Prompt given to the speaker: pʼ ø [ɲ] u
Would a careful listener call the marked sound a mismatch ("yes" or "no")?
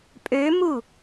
yes